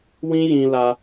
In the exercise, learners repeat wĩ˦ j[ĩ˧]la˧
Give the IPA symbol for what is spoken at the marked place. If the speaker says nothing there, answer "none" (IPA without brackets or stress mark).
ĩ˧